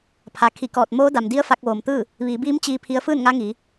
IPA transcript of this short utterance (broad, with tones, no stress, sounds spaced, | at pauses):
pʰ a˩ kʰ i˧˩ k ɔː˧˩ t̚ m oː˧˥ d a˩ m d i˧˥ ə̯ f a˧ k̚ ʋ oː˩ m t̪ ɯː˥˨ | ʋ iː˩˧ b iː˧˥ m t͡ɕ iː˧ pʰ i˧ ə̯ f ɯː˥˨ n ŋ a˧˥ ŋ iː˩˧